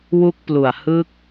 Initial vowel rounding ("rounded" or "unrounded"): rounded